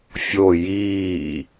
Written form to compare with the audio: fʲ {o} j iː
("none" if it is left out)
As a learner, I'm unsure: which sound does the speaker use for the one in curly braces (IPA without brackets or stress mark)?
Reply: o